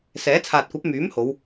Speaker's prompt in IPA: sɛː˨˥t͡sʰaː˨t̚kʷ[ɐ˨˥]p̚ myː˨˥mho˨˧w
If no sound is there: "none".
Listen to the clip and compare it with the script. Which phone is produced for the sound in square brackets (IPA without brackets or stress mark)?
ɐ˨˥